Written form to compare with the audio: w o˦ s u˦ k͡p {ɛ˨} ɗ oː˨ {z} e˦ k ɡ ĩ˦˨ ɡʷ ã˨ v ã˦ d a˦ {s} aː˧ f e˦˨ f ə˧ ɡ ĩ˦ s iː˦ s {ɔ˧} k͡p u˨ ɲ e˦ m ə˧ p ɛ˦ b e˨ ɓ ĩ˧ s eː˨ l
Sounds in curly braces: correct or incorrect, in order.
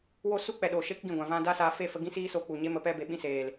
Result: correct, incorrect: ʃ, correct, incorrect: o˧

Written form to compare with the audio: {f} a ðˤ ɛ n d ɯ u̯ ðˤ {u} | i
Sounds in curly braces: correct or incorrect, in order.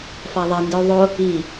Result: correct, incorrect: o

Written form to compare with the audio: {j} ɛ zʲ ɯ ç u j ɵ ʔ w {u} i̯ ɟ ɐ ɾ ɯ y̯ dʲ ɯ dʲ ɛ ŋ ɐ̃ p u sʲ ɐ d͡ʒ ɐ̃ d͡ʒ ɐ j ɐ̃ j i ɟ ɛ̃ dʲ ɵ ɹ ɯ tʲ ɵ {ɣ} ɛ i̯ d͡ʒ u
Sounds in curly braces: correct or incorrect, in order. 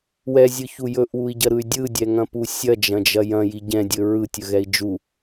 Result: incorrect: w, correct, correct

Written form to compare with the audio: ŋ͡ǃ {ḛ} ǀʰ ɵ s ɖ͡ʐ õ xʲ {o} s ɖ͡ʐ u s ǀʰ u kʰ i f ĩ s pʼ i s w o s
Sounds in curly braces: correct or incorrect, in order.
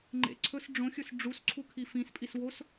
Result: correct, incorrect: ɵ

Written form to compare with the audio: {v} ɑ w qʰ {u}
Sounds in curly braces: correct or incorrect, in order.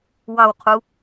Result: incorrect: w, correct

